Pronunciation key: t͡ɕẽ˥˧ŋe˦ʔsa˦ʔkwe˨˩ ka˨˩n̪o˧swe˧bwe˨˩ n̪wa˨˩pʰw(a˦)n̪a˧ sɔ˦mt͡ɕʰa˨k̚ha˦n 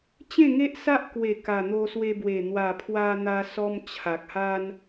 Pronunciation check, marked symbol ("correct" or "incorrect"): incorrect